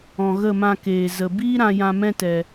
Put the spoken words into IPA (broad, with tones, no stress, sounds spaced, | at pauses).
ɔ̃˨ ɣ ə˦˨ m ã˧ k eː˨ z ə˨ b iː˦ ɾ ã˧ j ã˧ m ɛ̃˦ t ɛ˧